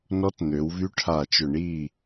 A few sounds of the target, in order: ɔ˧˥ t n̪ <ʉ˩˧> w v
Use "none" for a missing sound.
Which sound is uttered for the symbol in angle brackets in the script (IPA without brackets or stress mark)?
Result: ø˩˧